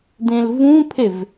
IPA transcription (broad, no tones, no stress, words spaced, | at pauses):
dẽlvũpʰev